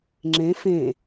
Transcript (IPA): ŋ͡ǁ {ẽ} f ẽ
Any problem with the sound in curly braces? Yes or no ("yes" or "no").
no